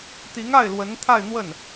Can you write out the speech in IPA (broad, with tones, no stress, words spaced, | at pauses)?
t̪i˧˥ŋa˥˩ɪ̯ lwə˧˥nt̪ʰa˥˧ɪ̯n̪wə˥˩n